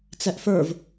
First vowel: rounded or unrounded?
unrounded